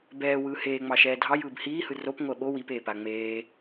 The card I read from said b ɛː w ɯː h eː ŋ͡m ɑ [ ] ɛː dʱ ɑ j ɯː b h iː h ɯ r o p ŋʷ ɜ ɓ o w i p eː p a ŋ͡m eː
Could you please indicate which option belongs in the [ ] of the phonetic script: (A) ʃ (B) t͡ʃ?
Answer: A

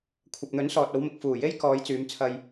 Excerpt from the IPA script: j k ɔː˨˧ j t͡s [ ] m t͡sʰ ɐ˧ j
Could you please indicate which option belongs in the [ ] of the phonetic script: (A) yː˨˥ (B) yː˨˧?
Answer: B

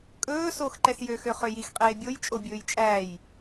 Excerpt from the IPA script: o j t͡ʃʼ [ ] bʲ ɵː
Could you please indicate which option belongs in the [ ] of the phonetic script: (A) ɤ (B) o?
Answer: B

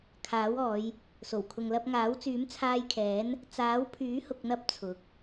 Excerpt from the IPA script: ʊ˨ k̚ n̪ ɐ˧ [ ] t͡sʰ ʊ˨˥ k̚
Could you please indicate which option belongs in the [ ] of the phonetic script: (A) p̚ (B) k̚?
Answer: A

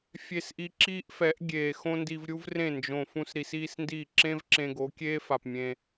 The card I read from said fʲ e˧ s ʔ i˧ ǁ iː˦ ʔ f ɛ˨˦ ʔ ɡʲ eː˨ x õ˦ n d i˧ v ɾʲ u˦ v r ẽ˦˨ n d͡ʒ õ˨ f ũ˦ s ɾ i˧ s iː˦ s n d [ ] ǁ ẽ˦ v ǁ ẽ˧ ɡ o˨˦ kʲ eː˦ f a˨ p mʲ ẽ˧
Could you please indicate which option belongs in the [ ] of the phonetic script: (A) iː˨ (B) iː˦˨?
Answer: B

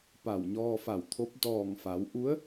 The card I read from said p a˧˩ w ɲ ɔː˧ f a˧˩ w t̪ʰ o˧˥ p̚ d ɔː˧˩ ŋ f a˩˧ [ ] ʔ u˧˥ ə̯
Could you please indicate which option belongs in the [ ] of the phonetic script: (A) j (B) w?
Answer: B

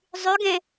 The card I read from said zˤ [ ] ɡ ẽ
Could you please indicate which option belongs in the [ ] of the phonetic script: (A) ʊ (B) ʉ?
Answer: B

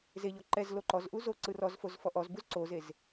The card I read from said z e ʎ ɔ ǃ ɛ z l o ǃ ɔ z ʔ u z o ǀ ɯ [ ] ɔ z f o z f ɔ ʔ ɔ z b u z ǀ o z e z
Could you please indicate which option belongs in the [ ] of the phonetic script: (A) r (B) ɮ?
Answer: A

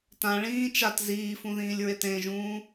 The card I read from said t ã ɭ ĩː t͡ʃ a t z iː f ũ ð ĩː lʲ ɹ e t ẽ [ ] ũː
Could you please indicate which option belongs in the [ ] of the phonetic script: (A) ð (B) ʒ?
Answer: B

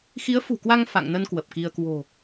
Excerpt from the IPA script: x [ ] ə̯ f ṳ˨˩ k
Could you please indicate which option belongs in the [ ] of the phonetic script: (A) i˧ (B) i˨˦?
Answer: B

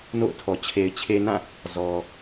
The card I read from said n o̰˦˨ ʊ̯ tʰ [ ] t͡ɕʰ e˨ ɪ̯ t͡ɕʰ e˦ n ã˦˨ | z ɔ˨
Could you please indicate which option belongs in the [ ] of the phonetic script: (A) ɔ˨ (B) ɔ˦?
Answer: A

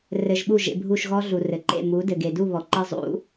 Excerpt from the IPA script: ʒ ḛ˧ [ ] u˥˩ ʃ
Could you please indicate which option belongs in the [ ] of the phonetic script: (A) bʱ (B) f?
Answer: A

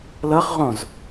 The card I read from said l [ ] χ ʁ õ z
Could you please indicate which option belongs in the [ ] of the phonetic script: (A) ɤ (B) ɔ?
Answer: A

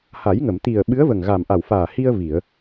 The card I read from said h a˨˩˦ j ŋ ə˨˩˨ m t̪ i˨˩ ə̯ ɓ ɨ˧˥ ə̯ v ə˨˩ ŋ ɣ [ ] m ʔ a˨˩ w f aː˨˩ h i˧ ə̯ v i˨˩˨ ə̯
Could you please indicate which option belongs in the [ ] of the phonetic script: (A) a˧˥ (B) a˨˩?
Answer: B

